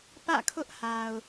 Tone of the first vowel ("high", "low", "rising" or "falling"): falling